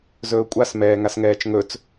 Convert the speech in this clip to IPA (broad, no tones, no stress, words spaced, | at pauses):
zɵːkʷʼas mɛːŋasŋɛːt͡ʃŋɵt͡s